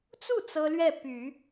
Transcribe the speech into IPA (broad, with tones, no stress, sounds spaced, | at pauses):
t͡s u˥˩ t͡s ɤ˥ l ɥ ɛ˥˩ p y˨˩˦